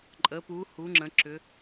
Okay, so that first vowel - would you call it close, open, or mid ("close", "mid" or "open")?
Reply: mid